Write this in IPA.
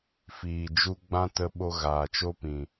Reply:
fiː˨d͡ʒu˧ ɡ͡bã˦tə˧ɓo˧ ɣaː˨t͡ʃo˦pĩ˨

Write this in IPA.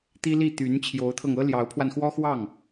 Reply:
t̪i˥li˥˩ t̪y˧˥n t͡ɕʰjo˧˥ʊ̯t̪ʰɤ˧ŋɤ˥ ljɑ˧˥ʊ̯pʰwa˧nxwɔ˥xwɑ˥˩ŋ

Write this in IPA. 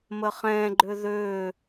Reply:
məχɛ̃ɡ͡ǃø ðø

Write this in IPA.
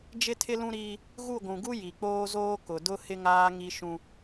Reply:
d͡ʒɪ˦tʰɪ˦lũ˦ɾiː˦ | ɣu˦˨ɡʷũ˨ɡu˦ ji˨k͡poː˦zoː˦ kʊ˨dʊ˦ hɪ˦ŋaː˦ŋi˦ʃũ˦

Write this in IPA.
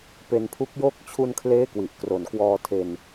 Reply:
pe˧npʰu˦˥k̚joː˥˩k̚ t͡ɕʰu˧nkʰleː˦˥ kwi˨˩ʔkro˨˩nkwɔː˧tʰe˧n

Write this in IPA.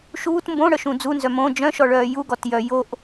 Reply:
ʃuːt mbõɽœʃũ d͡zunzœ mõ d͡ʒœ̃ʃɔɭœː juɡɔtjœ joʔ

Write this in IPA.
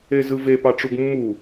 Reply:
ezɯve pɑʈ͡ʂuɡmːu

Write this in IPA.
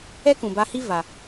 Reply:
ɛ˦ kũ˨ba˧hi˦ va˨

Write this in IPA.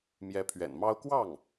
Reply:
mjɛ˧˥pʰɥɛ̰˨˩nmɑ˥ʊ̯ kwɑ˥˩ŋ

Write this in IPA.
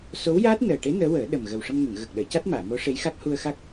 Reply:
so˧˥wjaː˦˥t̚ nəː˨˩ʈe˧˥ nəː˧˥wəː˨˩˦ɗə˨˩m ɣə˨˩wʂə˧mŋə˨˩˨ŋ ɣə˨˩k̚ɗəː˨˩˨ca˦˥t̚ maː˨˩˨mo˧˥ʂe˧˥jxa˦˥k̚ hu˧ə̯xa˦˥k̚

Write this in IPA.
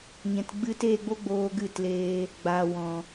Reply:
ɲɛ̃˨tɡ͡bɨ˧teː˦˨ɡ͡bo˦ ɡ͡boː˧ɡɨ˦˨tleː˧ | ɡ͡baː˨wɔ̃˨

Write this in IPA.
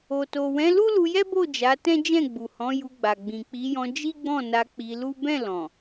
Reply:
o˨to˨wɛ̃˨˦lu˦ lu˧jɛ˦bo˦˨ d͡ʒa˨˦tɛ̃˦ d͡ʒɛ̃˦˨ɡ͡bu˨hɔ̃˨˦ ju˧ɡ͡ba˨ ɡ͡bĩ˨k͡pi˨˦jɔ̃˧ d͡ʒi˦ɡ͡bɔ̃˦˨na˧ k͡pi˧lu˦ bɛ̃˦˨ lɔ̃˨

